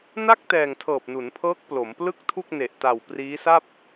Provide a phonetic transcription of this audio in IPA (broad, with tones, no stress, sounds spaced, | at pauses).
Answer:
n a˥˩ k̚ t ɛː˨˩ ŋ tʰ ɤː˨˩ p̚ n u˩˦ n pʰ ɤː˦˥ k̚ p l o˩˦ m p l ɯ˥˩ k̚ tʰ u˥˩ k̚ n e˨˩ ʔ t a˨˩ w p r iː˦˥ s a˥˩ p̚